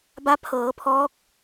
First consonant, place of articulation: labial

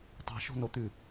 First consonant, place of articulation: alveolar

